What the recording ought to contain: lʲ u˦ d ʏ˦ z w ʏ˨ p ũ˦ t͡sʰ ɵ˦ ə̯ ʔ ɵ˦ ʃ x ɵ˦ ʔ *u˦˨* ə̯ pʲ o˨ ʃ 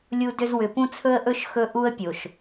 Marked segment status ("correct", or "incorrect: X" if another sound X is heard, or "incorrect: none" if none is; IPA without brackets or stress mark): incorrect: u˦